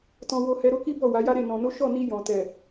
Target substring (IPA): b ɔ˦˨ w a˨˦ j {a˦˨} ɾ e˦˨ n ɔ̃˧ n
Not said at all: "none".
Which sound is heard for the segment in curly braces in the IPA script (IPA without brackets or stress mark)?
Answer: a˦